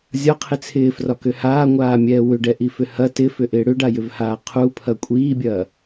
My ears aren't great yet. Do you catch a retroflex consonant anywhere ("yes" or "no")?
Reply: yes